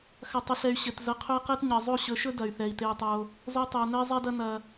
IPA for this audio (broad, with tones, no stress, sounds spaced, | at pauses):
x ɐ˨ tˤ ɵ˨ ɬ ɛ˨ y̯ ɕ ɘ˨ t z ə˨˦ qʰ ɵ˦ i̯ q e˦ t ɲ ɘ˨ zˤ o˦˨ ɕ ɵ˨˦ ʃ ɵ˦ d ɐ˨ y̯ θ ɛ˨ i̯ t e˧ i̯ tˤ o˧ | z o˧ tˤ ɛ˨ u̯ n ɘ˦ i̯ zˤ ɛ˦ d ɐ˦ n ɐ˧